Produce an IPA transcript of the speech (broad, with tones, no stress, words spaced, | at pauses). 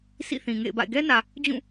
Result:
sḭ˦˨θĩ˨ ŋḛ˦˨ɪ̯ba̰˦˨ɪ̯ ɡɛ˦nä˨ | d͡ʑũ˦˨